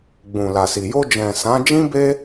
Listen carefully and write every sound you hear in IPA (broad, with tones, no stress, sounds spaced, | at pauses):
ɡ͡b ũ˨ l a˨ s i˨ j o˧ d͡ʒ ɛ̃˨ s ã˨˦ d͡ʒ ĩ˦ b e˦